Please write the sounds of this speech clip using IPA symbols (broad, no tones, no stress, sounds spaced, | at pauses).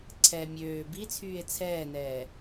ǀʰ ɛ mʲ øː b i t͡sʰ yː e̯ t͡sʰ ɛː n ɛː